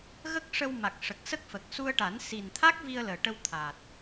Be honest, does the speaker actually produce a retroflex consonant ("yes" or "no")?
yes